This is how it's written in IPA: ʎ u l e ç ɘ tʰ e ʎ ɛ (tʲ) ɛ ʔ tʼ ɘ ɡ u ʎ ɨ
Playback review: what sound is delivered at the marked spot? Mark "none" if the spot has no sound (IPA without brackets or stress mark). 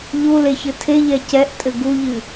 c